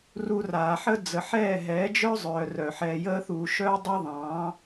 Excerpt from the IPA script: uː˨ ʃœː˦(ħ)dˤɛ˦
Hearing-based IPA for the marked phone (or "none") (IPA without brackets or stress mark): none